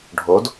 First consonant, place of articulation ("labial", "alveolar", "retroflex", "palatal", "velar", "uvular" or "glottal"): retroflex